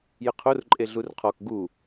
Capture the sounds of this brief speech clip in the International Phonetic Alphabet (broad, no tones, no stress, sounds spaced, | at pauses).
j ə qʰ o r ǃʼ e ɮ u r qʰ ɔ k ɡ u